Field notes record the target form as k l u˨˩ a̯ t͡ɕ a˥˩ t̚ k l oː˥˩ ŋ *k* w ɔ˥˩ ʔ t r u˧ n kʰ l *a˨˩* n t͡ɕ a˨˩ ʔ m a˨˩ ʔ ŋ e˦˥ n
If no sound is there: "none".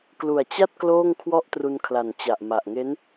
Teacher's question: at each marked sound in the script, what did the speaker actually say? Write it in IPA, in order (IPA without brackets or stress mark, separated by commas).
kʰ, a˨˩